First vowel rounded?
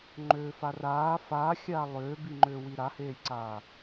yes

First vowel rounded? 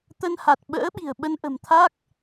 no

